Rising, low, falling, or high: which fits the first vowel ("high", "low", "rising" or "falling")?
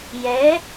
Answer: rising